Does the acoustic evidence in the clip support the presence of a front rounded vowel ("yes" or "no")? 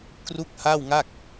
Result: no